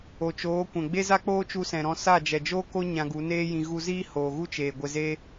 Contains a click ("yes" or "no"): no